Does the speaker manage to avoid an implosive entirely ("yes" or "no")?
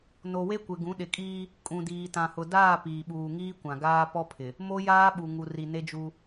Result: no